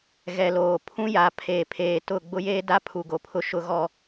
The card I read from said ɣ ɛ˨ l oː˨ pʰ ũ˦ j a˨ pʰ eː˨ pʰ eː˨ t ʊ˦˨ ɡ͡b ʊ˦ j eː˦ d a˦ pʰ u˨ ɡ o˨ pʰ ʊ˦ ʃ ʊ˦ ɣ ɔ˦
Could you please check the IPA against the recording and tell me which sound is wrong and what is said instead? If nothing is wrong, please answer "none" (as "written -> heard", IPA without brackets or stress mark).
none